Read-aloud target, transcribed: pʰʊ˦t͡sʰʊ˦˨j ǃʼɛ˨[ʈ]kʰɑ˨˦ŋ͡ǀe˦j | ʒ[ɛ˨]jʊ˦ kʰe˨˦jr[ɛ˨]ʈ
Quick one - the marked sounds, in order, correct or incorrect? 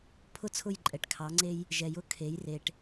correct, correct, incorrect

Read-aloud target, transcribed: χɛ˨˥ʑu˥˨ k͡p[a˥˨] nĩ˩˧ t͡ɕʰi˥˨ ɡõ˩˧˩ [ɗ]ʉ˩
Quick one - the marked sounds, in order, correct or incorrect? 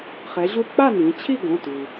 correct, incorrect

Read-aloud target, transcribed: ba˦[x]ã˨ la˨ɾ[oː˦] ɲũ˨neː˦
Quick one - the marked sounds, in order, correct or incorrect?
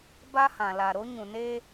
incorrect, incorrect

